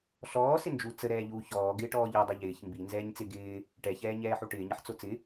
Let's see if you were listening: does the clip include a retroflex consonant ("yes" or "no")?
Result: yes